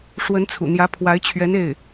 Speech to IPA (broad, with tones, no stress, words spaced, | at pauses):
ʂwə˧˥nt͡sʰṵ˨˩ n̪jä˧˥pʰwa˧˥ɪ̯t͡ɕʰɥɛ˧˥n e˥˩ɪ̯